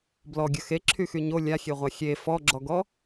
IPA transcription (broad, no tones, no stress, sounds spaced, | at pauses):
b l ɔ ɡʲ ə x e ǁʰ y x y ɲ o lʲ a xʲ e ʁʷ a xʲ e f ɔ ɡ͡ǁ ɔ ɡ ɔ